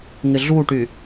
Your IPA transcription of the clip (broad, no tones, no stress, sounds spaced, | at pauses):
ŋ ɪ ɮ u ʈ y